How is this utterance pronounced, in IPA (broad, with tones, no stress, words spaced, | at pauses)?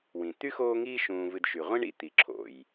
wĩ˩t̪y˥ xoː˦ŋiː˦ ʃũː˨vɨ˨dʃy˩ ʁʷĩ˥ɳḭ˦ t̪i˩ǁʰo̰˩j